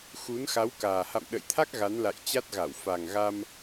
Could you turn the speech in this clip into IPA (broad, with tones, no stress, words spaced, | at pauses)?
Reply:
xu˨˦nxa˨˦wkaː˨˩ ha̰˧˨mɗə̰˧˨jt̪ʰa˦˥k̚ ɣa˨˦nla̰˧˨jt͡ɕa˦˥t̚ɣa˧˩w fa˨˩ŋɣa˧m